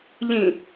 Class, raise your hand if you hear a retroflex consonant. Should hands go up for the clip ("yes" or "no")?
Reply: no